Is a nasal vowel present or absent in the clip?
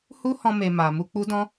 present